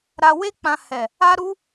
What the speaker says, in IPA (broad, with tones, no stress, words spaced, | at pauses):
ɾa˧we˦k͡pã˧ hɛ˨ | a˦ɾu˦